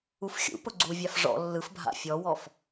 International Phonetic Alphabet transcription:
ufxʲṵpʊ ɡ͡ǀuvʲaf ʐɔ̰ lːɯfbʱa̰ fʲɔwɔf

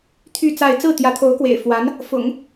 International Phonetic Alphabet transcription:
t̪ʰy˥˧ t͡sa˥˧ɪ̯ t͡sɹ̩˥˩t̪jä˧˥t̪ʰo˧˥ʊ̯kwḛ˨˩ɪ̯ fwa˧˥n | fʊ̰˨˩˦ŋ

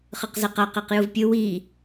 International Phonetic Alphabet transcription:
χɯqzɛqa qeqjuvpʲɯ wi

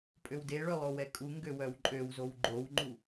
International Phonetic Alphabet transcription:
pʼøwdeɭølˠo wɛkʼu ŋɡøwœwǃʼøwzow ɡ͡ǃowŋ͡ǃu

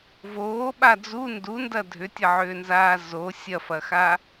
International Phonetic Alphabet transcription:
voːɓa d͡zu ndundɐ dʱʏtʲɐʕʏːnzaː zo sʲɐfɐxa

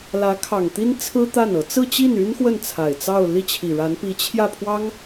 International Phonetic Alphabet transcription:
lä˧˥ kʰɑ˨˩ŋt̪i˥nt͡sʰɹ̩˥ t̪a˥˩nɤ˧˥ t͡sɹ̩˥˧t͡ɕi˥˩ny˥n xwə˥˩nt͡sʰa˨˩ɪ̯ t͡sɑ˥˧ʊ̯ li˥˩t͡ɕʰi˨˩ɻa˧˥npi˧˥ t͡ɕʰjä˥˩pʰwɑ˥ŋ

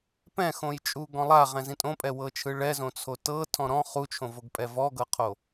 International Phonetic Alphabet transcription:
pɛ̃xõjt͡ʃʼuɡɔ̃ lˠaʁɛ̃zĩ tʼõpʼɛwɤt͡ʃʰɯ ɭɛzõt͡sʰo tɤtʰɔ̃ ɾɔ̃ χut͡ʃʰõvoɡpʼɛ vɔɡɤqʰo

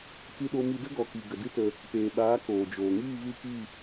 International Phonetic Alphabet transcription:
kɨ˧ɗo˧mi˧ də˦ɡɔ˨ki˨ ɡə˨dɨ˦tə˧ | peː˨ɓaː˨˦ koː˨d͡ʒoː˨ ŋiː˦˨vɨ˦˨ki˦˨

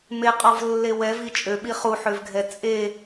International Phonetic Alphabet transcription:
meqʼɔvlːe wɛvi t͡ʃʼøɓi χuħøvɡʱɛ t͡sʼe

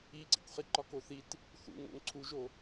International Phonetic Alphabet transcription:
iǀḭkʷχi ǃɒkoθit | θṵŋo̰ŋ ǀʰuʒo

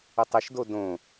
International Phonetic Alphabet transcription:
ətˤɘʃdo dõ

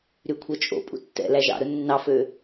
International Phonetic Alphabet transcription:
ɾykʷʰœt͡ʃʼo̰pʼṵ tːɛ̰læ ʒɑ̰ɾɵ nːɑfø

